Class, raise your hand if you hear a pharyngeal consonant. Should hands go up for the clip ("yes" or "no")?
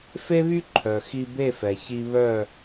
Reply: no